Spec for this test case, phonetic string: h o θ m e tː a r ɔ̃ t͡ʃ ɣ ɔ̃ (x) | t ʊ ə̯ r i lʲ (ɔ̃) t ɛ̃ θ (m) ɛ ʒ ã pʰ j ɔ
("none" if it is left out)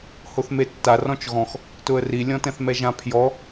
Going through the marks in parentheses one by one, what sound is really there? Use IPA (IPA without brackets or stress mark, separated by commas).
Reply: x, ɔ̃, m